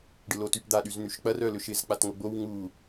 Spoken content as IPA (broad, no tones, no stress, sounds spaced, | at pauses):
ɖ ɪ l o t y p d̪ a ɗ y z n̪ y ʃ k͡p ɐ r œ l ʏ ʃ ɪ z k͡p a t ŋ o ɡ͡b o w ŋ u